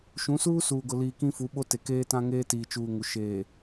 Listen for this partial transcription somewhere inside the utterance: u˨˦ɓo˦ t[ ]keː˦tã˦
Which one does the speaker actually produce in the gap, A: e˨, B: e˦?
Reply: A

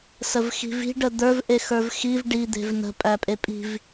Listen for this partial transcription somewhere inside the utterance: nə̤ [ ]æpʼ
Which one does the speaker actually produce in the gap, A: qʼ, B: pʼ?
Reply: B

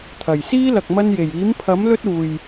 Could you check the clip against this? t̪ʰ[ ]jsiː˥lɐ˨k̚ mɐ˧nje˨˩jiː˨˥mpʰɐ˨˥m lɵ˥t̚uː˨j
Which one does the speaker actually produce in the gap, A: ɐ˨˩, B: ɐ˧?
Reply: A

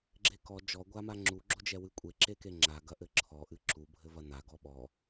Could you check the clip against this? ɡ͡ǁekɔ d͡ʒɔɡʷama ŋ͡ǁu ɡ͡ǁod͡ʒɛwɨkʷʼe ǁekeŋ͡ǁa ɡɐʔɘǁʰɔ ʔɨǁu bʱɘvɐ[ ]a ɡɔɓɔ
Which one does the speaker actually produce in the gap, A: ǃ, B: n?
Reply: B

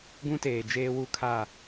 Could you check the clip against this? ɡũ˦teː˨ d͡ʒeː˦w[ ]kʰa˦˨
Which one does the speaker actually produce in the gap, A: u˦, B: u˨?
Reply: A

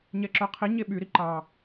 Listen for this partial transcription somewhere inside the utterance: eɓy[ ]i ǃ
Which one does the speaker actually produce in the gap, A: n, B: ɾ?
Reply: B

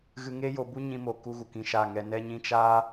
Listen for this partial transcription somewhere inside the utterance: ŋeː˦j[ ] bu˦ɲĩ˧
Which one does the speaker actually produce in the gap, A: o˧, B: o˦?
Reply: A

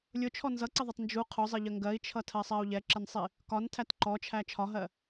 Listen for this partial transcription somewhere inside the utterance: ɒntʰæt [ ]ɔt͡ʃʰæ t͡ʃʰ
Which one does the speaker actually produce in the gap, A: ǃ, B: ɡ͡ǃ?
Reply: A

